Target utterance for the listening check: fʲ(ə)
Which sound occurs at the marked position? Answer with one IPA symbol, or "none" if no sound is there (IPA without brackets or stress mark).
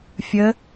ə